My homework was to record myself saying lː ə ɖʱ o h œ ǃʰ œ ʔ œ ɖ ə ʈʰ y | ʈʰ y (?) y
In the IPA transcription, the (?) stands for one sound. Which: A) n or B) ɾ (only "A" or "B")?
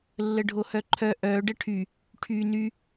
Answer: A